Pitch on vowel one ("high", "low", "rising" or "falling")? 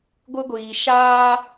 high